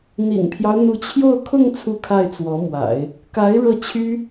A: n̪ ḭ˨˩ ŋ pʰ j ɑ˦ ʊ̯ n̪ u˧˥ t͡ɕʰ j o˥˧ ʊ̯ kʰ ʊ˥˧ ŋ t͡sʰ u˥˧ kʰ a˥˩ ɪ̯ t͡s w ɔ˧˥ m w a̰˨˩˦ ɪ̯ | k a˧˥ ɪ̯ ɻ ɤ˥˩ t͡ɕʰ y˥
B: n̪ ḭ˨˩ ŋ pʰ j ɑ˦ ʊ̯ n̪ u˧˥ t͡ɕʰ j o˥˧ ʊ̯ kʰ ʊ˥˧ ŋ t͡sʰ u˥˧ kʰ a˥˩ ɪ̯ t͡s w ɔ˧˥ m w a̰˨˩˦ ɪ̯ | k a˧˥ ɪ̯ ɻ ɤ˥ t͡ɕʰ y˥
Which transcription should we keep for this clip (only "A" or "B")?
A